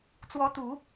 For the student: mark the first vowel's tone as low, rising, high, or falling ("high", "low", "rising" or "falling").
rising